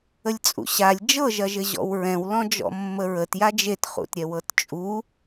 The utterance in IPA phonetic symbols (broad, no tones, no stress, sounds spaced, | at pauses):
ə lʲ t͡sʼ ṵ ɕ a lʲ d͡ʒ ɤ ʒ ɐ ʒ ɘ ʑ ɔ̰ w ɹ ɛ̃ w l ɔ̃ d͡ʒ ɔ̰ mː ə ɹ ə t j a d͡ʒ e t χ ṵ t ɾʲ ɛ w ɤ t t͡ʃʼ u